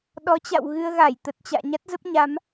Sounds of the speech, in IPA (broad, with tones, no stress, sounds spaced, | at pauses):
ɗ ɔ˨˦ t͡ɕ a̰˧˨ w ɣ ɨ˧ ə̯ ɣ a˧˩ j t̪ ə˨˩ t̚ t͡ɕ a̰ː˧˨ ɲ a˦˥ t̚ z ə˦˥ p̚ ɲ a˨˦ m